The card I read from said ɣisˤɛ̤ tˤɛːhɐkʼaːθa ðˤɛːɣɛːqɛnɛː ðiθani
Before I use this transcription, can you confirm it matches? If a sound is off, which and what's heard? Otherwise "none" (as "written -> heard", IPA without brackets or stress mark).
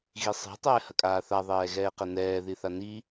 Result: none